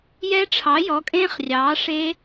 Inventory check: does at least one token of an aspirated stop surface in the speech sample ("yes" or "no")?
yes